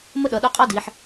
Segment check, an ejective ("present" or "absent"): present